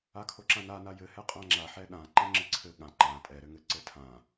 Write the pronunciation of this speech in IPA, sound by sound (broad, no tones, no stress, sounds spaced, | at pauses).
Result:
a kʰ o ǁ ã n a n a j ɘ h ɛ qʼ ã ŋ͡ǁ a ħ ɛ ɗ ã ǃ ɛ̃ ŋ͡ǁ ɘ ǀʰ ɘ ɠ ã ǃ ã tʼ ɛ ɾ ɘ ŋ ɘ ǀ ɘ tʰ ã